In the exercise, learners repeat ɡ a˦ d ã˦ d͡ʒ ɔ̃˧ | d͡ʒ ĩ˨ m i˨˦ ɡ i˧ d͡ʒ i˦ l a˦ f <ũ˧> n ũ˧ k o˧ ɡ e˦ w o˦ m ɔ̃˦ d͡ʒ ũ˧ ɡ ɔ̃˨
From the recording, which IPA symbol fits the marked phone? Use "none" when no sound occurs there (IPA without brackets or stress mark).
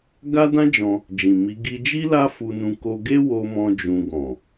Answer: u˧